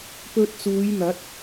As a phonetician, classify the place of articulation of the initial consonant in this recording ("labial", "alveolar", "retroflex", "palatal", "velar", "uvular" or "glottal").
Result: labial